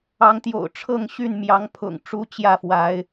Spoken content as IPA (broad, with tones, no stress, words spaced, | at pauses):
ɑ˨˦ŋ t̪jo̰˨˩ʊ̯ ʈ͡ʂʰɤ˥˨ŋ ɕy˥˨nmjɑ˨˦ŋ pʰʊ̰˨˩ŋ ʈ͡ʂu˦t͡ɕjä˥˨fwa˨˦ɪ̯